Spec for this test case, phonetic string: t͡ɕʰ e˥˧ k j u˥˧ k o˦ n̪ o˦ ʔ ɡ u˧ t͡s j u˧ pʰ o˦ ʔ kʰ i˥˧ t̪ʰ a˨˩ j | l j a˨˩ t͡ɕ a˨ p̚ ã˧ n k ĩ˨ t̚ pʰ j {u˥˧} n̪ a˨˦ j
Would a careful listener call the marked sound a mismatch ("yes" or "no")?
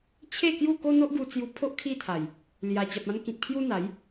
yes